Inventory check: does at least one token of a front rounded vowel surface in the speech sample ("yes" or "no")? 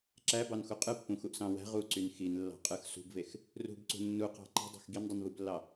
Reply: yes